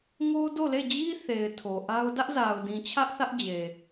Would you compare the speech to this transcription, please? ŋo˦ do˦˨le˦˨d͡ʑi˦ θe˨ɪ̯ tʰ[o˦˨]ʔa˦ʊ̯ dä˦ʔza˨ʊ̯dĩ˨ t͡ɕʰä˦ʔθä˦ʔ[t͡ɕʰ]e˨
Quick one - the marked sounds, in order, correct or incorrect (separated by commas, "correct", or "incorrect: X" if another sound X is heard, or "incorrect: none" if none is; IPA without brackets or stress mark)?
incorrect: o˨, incorrect: d͡ʑ